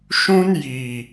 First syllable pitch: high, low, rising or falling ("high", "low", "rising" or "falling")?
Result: high